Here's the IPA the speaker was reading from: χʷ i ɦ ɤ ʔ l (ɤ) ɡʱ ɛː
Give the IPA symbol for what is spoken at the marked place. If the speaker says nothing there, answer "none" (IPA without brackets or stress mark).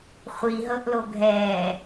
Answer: o